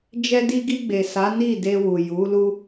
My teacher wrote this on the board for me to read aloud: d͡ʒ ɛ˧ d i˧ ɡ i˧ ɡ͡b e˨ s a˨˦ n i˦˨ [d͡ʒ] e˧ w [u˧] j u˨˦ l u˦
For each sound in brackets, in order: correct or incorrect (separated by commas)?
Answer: incorrect, incorrect